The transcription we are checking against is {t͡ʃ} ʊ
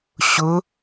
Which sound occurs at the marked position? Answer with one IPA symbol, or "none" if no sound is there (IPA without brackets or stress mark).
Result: ɕ